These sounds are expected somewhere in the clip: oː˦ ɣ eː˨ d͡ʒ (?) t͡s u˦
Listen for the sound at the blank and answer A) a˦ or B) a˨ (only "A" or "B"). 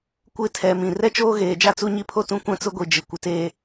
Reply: A